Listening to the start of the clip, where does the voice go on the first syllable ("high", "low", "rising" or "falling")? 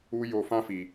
high